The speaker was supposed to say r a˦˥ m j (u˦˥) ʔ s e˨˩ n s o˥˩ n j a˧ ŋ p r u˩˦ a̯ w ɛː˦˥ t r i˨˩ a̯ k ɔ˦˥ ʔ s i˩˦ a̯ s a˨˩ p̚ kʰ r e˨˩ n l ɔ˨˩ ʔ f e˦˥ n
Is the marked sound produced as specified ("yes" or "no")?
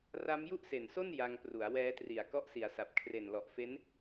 no